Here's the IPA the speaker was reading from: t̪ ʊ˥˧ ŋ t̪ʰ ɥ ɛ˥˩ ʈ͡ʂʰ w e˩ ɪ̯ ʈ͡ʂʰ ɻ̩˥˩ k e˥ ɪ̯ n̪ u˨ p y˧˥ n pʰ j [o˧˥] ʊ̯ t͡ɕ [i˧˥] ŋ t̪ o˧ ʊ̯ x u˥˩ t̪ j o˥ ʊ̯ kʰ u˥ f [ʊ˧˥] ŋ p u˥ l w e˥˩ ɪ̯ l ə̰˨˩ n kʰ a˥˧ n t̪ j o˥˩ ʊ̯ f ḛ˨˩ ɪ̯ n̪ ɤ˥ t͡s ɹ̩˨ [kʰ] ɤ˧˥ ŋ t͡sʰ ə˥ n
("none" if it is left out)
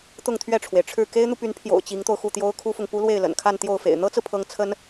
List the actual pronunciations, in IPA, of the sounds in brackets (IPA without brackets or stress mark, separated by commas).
o̰˨˩, i˧˥, ʊ˨, pʰ